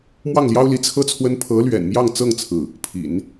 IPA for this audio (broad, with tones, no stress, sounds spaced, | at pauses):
m w ɑ˥˩ ŋ l j ɑ˥ ʊ̯ l i˧˥ t͡sʰ ɤ˥ t͡sʰ w ə˥ n pʰ ɤ˧˥ l ɥ ɛ̰˨˩ n m j ɑ˥˧ ŋ t͡s ɤ˥˧ ŋ t͡sʰ ɹ̩˥˩ | pʰ ḭ˨˩˦ n